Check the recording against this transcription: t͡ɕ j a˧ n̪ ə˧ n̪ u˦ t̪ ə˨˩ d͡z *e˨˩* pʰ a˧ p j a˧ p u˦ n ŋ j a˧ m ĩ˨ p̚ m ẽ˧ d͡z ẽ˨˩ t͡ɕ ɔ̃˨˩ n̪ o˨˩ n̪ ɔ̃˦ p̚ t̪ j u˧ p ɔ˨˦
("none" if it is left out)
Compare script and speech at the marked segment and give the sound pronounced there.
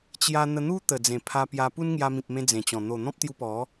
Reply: ẽ˨˩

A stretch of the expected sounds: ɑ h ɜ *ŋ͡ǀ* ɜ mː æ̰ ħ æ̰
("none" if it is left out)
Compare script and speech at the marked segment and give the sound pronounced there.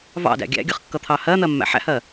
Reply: n̪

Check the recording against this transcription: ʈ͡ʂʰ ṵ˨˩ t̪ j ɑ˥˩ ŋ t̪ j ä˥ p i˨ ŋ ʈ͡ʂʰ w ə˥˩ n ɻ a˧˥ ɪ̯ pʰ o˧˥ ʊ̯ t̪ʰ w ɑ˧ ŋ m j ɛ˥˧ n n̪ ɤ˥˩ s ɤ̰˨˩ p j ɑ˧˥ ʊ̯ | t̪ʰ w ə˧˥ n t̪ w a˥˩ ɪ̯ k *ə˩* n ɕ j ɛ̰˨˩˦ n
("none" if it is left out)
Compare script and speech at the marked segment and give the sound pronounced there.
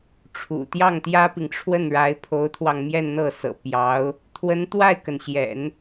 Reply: ə˩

